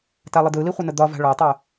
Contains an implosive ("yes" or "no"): no